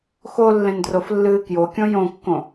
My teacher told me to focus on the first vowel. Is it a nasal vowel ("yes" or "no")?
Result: no